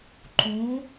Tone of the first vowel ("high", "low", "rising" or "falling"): rising